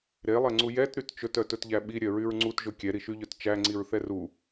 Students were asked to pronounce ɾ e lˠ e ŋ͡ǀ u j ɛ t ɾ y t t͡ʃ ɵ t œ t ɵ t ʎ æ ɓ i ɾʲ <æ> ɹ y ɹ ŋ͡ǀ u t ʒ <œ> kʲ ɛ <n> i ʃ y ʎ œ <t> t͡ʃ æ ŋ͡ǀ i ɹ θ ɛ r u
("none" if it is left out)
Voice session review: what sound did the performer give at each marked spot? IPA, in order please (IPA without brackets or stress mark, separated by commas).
œ, ɵ, ɾ, t